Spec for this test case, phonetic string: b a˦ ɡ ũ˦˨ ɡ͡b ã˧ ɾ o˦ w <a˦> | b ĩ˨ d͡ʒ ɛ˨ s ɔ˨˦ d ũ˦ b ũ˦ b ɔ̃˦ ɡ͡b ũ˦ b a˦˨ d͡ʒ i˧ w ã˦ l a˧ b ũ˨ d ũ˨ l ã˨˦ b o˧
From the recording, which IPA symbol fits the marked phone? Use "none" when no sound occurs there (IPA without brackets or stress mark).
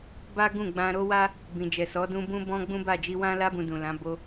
a˦